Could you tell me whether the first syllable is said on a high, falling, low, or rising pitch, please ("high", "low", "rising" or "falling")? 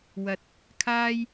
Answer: low